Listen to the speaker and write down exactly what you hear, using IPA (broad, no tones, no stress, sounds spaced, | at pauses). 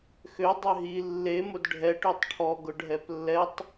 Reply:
x ø dˤ ø ɦ i lː e m ʊ d ɖʱ ɛ ʈ ø tˤ ʈʰ ɔ ɡ ʊ ɖʱ ɛ p lː ɛ tˤ